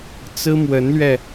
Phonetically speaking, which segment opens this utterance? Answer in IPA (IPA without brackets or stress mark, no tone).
t͡s